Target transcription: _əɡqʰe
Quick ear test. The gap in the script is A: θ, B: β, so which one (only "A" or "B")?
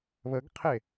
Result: B